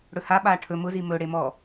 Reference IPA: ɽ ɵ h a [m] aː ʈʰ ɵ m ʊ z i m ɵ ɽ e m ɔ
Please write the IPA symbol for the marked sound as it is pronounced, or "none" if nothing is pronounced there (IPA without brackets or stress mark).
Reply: ɓ